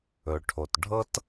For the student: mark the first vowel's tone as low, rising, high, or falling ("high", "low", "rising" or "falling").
low